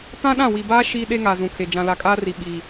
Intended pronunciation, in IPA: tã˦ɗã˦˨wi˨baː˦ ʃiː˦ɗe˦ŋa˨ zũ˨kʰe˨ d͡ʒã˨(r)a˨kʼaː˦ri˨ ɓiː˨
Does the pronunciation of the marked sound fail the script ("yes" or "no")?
yes